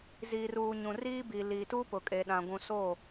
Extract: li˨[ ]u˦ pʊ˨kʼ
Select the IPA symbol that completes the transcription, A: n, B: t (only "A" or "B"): B